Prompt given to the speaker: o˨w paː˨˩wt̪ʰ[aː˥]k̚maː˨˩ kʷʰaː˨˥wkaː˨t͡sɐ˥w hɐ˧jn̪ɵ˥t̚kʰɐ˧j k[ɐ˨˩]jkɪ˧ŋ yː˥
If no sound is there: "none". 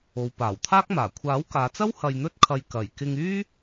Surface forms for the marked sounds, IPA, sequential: aː˥, ɐ˨˩

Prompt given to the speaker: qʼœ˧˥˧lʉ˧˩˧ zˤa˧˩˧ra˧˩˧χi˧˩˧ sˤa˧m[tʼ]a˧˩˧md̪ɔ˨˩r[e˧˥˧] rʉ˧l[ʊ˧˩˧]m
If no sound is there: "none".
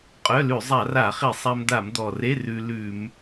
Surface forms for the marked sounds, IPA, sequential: d̪, e˧˥˧, ʉ˧˩˧

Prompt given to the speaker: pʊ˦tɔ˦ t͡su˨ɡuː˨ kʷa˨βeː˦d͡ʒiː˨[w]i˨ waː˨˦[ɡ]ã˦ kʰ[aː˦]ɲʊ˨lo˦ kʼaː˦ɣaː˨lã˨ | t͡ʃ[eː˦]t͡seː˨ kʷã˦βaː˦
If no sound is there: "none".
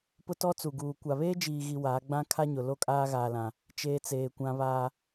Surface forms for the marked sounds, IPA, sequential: ɣ, ɡ͡b, a˦, eː˦

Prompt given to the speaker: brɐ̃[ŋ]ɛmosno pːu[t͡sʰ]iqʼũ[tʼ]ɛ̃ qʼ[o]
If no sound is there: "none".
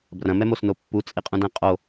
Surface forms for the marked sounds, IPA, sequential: m, t͡sʼ, d, o

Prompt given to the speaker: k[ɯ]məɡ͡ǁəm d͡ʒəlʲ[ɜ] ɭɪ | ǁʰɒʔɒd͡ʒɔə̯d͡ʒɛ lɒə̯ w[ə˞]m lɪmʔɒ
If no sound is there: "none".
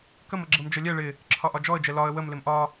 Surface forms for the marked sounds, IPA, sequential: ə, ɛ, ə

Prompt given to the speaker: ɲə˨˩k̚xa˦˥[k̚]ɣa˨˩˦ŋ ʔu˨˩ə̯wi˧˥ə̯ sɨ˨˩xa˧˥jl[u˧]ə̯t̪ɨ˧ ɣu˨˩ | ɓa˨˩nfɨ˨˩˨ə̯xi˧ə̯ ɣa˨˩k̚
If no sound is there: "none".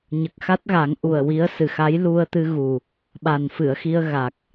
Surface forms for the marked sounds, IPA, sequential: t̚, u˧

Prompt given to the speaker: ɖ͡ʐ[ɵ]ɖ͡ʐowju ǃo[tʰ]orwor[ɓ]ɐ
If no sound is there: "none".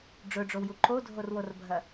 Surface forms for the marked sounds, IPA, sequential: ɵ, dʱ, bʱ

